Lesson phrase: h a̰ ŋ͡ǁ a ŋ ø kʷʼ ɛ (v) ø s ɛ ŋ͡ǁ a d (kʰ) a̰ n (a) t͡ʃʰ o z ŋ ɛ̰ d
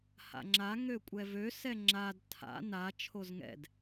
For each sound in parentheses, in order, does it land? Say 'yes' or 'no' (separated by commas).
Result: yes, no, yes